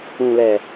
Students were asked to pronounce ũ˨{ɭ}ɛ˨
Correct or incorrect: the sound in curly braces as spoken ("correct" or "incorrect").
incorrect